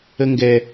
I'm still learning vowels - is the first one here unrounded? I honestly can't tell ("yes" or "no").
yes